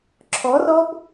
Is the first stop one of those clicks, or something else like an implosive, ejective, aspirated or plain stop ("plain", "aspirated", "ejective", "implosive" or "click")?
click